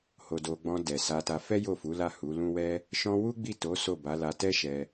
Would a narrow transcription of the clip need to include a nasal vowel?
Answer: yes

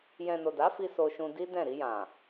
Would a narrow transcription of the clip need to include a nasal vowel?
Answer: yes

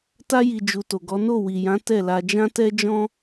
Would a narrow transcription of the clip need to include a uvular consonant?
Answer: no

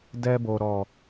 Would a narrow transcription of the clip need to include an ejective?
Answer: no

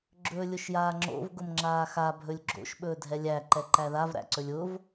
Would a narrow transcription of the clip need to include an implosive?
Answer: yes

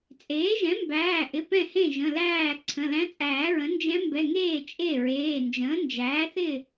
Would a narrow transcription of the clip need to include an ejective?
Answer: yes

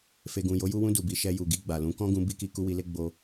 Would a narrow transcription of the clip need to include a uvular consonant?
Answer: no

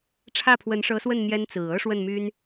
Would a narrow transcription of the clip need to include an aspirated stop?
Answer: yes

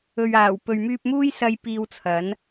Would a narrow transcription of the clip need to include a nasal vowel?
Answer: no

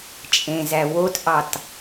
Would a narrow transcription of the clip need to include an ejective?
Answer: yes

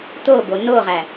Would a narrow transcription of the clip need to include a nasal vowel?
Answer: no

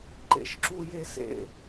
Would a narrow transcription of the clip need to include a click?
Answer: yes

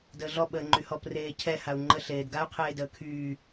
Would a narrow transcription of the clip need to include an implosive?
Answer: yes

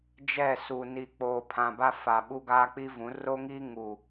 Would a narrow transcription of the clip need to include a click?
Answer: no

